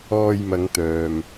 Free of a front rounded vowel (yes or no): no